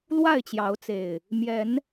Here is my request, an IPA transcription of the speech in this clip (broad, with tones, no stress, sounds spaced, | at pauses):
l w a˥˨ ɪ̯ t͡ɕ j ɑ˨˦ ʊ̯ t͡s e˨˩ ɪ̯ | m j ɛ˨˦ n